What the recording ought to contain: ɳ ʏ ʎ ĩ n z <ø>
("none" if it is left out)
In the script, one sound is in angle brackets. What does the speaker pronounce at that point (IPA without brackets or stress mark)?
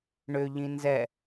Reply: ɛ